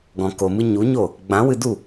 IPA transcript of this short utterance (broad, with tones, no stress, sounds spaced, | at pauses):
ɡ ɔ̃˨ k o˨ m ɨ˧ ɲ u˨˦ ɲ o˦˨ | ɡ͡b ã˨˦ w ɨ˧ d u˦˨